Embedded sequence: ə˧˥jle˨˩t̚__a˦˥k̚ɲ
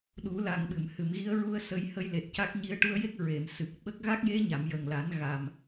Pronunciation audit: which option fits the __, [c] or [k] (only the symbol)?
c